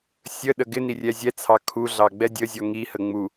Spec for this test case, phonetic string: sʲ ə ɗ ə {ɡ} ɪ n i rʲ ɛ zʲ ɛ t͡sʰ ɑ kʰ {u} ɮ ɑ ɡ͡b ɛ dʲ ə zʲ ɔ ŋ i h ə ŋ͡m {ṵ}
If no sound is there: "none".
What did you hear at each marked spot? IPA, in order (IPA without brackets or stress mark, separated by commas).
ɡ, u, u